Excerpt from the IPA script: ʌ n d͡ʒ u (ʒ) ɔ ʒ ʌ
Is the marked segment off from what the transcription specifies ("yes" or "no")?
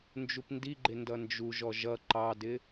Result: no